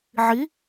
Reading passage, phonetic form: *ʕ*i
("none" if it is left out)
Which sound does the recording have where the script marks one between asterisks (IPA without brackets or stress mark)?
ʕ